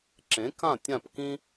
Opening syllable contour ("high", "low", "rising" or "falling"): rising